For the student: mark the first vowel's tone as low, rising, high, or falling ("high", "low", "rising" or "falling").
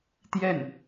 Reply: falling